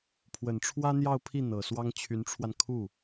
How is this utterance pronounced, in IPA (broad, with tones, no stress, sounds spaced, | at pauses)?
pʰ w ə˨˩ n ʈ͡ʂʰ w ä˥ n̪ j ɑ˥˧ ʊ̯ pʰ i˥˩ n̪ ɤ˨˩ s w ɑ˥ ŋ t͡ɕʰ y˧˥ n ʈ͡ʂʰ w a˧ n kʰ u˥˩